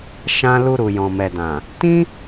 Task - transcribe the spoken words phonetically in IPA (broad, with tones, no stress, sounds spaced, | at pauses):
ʃ ã˧ l u˧ ɾ u˨ j ɔ̃˨ m ɛ˨ d ã˨ | t ĩ˦